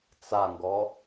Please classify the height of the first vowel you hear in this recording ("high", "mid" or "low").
low